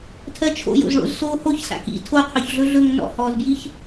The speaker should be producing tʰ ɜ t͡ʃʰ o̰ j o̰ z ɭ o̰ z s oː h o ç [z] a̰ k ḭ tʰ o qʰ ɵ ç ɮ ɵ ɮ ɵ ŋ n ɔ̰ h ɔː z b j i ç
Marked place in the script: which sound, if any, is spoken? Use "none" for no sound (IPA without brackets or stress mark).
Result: s